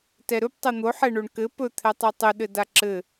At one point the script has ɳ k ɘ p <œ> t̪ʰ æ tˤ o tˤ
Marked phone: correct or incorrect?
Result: incorrect